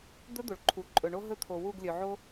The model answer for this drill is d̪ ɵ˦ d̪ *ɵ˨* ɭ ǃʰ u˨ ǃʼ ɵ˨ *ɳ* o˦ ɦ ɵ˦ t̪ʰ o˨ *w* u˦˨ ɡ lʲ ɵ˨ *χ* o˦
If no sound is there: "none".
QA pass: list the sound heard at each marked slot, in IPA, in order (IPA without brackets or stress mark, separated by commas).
o˨, ɳ, w, ʕ